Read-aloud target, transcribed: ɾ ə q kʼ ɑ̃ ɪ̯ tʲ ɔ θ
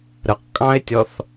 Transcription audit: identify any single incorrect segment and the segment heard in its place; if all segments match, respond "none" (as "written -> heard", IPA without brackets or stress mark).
none